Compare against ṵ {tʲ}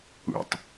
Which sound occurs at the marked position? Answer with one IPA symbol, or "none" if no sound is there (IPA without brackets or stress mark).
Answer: tˤ